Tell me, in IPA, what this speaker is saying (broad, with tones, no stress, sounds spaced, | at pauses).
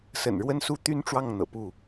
s ə̰˨˩ n ɻ w ə˦ n s u˦ t̪ y˦ n ʈ͡ʂ w ɑ˥˨ ŋ n̪ ɤ̰˨˩ p u˥˨